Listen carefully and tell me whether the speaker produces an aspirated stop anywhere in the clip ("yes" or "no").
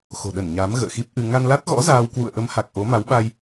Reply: no